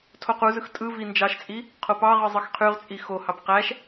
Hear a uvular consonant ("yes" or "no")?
yes